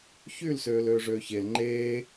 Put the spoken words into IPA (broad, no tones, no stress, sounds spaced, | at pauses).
ç y l s øː l øː ʐ øː ç e l ŋ͡ǃ eː